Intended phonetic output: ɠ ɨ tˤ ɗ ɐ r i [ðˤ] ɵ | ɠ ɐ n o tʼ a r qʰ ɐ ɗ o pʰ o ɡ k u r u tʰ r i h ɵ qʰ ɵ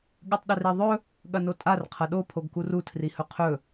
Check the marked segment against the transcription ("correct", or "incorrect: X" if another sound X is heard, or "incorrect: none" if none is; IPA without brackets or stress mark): correct